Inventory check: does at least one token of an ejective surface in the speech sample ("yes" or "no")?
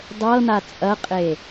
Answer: yes